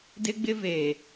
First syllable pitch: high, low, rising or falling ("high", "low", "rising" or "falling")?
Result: high